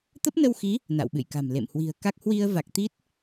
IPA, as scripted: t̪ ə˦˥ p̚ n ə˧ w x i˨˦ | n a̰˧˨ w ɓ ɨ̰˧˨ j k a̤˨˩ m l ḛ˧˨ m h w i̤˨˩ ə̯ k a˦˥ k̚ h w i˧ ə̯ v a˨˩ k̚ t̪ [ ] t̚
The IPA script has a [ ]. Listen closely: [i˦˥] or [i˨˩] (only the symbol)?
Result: i˦˥